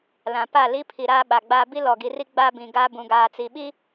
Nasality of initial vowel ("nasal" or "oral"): nasal